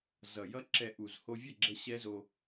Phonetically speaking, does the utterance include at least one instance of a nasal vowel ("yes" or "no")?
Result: no